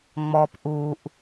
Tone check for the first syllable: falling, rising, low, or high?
low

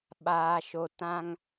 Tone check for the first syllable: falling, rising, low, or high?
low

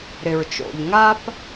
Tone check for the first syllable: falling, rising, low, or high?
low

